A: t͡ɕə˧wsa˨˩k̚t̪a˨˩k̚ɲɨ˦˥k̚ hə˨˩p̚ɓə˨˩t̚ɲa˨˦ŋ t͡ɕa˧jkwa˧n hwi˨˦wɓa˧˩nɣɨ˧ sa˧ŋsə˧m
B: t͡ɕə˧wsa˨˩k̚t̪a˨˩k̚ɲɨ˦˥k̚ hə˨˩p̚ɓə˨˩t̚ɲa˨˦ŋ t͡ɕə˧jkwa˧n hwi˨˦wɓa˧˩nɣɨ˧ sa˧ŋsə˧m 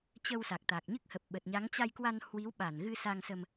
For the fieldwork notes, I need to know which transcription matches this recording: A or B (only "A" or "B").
A